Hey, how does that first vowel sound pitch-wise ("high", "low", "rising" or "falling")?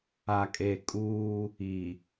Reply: low